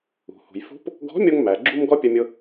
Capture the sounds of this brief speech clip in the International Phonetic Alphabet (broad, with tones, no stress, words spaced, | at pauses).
ṳ˩hṳ˩j fṳ˧˥p | ɡɔ̤˧˥mʲo˧ŋmæ˩ɡ͡ǁu˧m ɡɔ˥pʲə˧mʲʊ˧